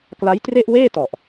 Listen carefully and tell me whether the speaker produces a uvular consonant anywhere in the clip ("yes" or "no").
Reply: no